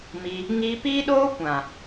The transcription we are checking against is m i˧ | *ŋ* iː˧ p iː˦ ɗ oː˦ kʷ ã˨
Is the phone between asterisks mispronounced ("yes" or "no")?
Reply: no